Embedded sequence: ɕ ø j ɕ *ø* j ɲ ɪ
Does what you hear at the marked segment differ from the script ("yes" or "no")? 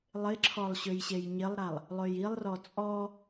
yes